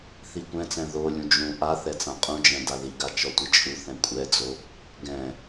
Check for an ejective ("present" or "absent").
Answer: present